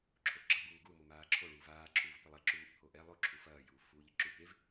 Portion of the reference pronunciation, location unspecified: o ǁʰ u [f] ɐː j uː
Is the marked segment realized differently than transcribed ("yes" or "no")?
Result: no